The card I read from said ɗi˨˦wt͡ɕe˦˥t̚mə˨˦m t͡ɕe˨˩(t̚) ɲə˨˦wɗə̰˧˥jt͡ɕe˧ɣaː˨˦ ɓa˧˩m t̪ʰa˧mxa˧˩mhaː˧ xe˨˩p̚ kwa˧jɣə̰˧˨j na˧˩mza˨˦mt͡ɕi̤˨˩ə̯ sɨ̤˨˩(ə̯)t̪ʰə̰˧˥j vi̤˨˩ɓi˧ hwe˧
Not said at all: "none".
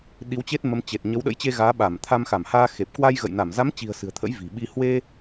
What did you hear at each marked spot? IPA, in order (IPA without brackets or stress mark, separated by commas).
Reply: t̚, ə̯